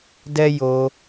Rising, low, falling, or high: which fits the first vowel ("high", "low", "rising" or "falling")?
high